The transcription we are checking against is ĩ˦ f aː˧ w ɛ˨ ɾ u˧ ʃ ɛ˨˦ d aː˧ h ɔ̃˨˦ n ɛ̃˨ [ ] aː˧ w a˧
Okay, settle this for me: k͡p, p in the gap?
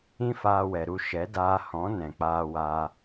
k͡p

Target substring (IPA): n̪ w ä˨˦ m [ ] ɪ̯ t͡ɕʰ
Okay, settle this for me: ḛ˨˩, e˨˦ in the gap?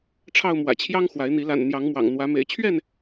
ḛ˨˩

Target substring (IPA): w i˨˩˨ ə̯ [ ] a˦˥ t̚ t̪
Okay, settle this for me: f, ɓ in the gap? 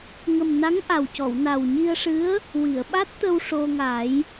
ɓ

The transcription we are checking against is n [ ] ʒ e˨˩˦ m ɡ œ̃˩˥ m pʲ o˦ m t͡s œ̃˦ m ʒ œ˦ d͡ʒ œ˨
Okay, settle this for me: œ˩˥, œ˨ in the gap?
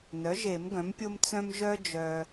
œ˩˥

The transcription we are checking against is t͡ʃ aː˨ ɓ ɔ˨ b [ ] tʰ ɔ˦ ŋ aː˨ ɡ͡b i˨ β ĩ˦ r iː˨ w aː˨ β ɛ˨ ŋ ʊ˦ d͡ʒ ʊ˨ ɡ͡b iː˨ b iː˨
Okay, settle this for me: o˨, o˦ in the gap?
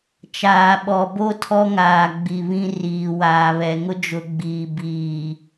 o˦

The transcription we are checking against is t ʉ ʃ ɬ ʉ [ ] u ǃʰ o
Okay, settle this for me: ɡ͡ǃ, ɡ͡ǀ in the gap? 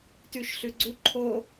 ɡ͡ǀ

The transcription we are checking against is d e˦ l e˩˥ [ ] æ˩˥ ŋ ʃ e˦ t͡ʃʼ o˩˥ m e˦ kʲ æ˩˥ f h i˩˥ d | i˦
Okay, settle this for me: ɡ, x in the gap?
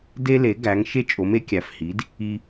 ɡ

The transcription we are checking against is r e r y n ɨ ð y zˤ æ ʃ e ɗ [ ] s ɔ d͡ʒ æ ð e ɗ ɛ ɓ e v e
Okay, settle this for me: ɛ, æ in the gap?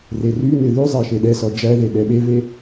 ɛ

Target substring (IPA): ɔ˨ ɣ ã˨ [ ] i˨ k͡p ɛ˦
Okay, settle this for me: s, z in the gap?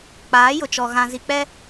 z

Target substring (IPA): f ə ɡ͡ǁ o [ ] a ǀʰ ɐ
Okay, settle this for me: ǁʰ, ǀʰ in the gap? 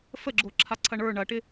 ǁʰ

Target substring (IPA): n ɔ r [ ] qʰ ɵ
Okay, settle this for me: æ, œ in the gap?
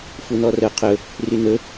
œ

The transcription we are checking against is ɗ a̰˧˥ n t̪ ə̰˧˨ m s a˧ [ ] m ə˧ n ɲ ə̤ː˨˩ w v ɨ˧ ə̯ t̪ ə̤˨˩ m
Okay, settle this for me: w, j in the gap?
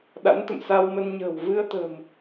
w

